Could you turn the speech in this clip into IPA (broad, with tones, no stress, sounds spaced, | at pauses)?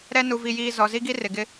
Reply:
ɾ ɛ˦ n u˨ v i˨ j iː˨ z ɔ˨ z i˦ ɡ i˦ r ɪ˨ ɡ ɪ˦